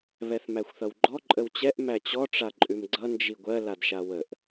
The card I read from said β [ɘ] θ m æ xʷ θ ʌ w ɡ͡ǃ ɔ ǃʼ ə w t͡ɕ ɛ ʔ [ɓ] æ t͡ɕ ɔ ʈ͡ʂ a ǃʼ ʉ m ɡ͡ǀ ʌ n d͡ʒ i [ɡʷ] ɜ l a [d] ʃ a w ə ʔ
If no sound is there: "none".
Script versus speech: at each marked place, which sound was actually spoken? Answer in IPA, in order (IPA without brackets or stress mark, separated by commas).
ɛ, m, ɡʷ, d